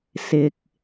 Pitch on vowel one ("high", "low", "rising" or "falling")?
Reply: low